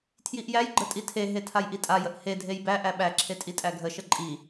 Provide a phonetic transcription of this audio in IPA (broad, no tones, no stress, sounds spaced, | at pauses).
tʰ j i ʔ j æ j ɡ͡ǃ ə tʼ i tʰ e ɦ e tʰ a j ʔ i tʼ a j ə ʔ h e dʱ e j b æ ʔ æ ɓ æ ǁʰ e tʼ i tʼ æ ɡʱ ə ʃ ə ǃʼ i